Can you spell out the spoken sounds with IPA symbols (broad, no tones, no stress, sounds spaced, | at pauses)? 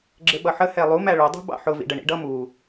ɡ͡ǁ ɪ ɓ ʌ ħ ə h ɛ lˠ u m æ ɭ ʊ dˤ ṳ b ɑ̰ ħ ʊ v ḭ ɖ ə ɳ ḭ ɖ ʌ m u